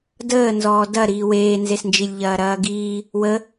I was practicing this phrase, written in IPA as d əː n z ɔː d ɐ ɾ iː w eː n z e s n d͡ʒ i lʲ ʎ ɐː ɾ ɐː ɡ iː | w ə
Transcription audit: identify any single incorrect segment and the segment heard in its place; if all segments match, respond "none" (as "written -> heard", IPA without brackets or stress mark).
none